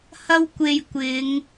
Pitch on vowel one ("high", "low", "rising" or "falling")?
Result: high